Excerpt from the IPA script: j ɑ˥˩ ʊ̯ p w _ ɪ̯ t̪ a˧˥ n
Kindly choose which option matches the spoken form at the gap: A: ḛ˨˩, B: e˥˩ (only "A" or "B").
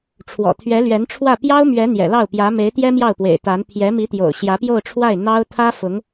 A